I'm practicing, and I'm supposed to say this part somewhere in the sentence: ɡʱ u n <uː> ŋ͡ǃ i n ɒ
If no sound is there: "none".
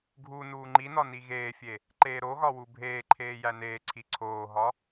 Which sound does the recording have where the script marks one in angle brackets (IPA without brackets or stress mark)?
uː